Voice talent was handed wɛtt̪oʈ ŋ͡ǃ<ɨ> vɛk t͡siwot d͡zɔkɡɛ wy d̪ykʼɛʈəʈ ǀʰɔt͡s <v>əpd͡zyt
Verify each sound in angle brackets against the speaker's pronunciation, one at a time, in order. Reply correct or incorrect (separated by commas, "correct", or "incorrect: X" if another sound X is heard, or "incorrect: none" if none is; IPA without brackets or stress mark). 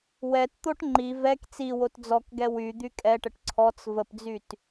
incorrect: i, correct